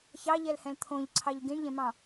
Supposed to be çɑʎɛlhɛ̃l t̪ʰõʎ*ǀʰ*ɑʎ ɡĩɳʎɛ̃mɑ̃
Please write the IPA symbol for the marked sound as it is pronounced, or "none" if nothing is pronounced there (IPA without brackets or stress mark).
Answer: ǀʰ